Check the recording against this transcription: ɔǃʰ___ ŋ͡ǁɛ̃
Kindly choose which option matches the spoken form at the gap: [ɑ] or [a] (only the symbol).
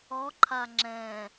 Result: a